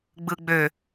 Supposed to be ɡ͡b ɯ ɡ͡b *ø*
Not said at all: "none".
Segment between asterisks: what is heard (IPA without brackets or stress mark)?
ø